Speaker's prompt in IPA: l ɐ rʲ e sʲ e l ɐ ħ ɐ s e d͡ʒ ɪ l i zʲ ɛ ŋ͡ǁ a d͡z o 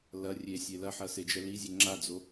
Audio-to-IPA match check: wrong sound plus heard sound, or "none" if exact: ɪ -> ɛ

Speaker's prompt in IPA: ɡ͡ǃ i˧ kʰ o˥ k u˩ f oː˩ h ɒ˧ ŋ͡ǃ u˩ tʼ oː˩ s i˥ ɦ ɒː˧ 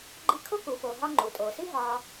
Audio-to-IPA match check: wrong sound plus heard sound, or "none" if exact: h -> ɦ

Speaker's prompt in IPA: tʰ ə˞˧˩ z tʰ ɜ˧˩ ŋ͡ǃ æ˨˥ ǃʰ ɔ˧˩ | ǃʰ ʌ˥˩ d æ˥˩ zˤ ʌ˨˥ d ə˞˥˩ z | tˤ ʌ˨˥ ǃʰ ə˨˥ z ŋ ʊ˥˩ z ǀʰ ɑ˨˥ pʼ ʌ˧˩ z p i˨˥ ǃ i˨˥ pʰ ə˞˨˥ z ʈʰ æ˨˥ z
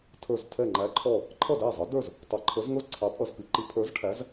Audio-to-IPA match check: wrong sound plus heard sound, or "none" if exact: ɜ˧˩ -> ɛ˧˩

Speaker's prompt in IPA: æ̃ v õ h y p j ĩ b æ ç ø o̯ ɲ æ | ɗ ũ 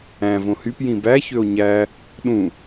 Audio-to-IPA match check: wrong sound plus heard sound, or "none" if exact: none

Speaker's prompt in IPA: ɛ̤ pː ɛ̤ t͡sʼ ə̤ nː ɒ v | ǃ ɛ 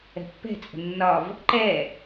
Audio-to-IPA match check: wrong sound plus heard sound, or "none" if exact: none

